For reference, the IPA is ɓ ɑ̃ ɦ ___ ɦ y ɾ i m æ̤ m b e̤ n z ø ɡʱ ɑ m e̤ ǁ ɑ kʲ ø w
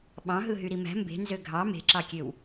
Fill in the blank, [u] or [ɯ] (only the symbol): ɯ